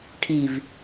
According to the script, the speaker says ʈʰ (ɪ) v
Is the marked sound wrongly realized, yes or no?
yes